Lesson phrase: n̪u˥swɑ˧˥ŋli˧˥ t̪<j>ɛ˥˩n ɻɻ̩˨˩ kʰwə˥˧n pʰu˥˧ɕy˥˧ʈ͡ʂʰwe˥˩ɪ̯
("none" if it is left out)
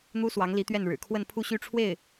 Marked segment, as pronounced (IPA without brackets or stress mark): ɥ